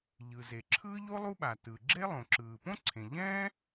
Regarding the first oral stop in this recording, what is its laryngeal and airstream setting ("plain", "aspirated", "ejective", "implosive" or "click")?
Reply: click